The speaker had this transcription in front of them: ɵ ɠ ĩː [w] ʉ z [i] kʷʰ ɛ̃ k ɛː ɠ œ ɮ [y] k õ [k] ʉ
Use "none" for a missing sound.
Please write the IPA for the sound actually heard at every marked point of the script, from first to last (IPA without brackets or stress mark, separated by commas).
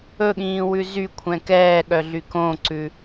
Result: w, y, y, ǀ